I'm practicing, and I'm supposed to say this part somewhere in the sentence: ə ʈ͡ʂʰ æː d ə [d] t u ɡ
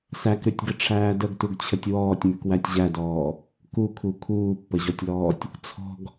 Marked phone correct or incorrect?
incorrect: ɡ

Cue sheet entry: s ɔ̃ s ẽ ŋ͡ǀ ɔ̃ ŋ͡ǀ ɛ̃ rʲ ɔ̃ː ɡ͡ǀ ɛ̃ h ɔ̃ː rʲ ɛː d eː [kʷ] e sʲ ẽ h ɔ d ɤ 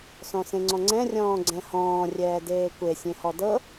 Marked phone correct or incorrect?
correct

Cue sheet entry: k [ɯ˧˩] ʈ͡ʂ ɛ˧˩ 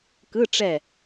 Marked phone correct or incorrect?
incorrect: ɯ˧˥˧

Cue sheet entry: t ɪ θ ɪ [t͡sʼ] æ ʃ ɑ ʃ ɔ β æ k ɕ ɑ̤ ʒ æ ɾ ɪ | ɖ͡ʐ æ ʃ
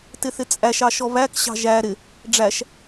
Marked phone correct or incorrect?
correct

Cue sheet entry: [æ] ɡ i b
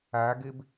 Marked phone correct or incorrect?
correct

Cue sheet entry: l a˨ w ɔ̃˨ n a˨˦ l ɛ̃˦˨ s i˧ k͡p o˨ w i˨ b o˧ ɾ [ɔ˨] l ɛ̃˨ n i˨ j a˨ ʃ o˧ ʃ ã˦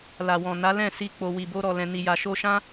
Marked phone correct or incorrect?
correct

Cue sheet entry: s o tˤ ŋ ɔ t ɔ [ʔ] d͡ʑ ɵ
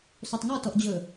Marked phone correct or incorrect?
correct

